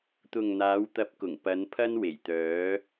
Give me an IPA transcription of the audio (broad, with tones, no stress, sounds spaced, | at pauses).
t̪ ʊ˨ ŋ n̪ aː˨˧ w t̪ ɐ˨˥ p̚ k ʊ˨˩ ŋ p ɐ˨˧ n pʰ ɐ˧ n w e˨˩ j t̪ œː˨˧